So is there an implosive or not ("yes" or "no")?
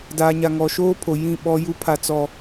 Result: yes